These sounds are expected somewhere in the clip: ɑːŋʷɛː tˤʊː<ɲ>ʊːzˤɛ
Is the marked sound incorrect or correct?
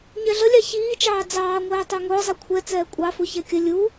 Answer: incorrect